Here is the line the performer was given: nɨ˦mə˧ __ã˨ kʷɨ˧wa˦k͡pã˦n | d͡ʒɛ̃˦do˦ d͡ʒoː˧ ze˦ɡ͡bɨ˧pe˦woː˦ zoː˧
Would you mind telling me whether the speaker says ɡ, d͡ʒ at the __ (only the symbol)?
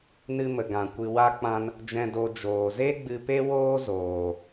ɡ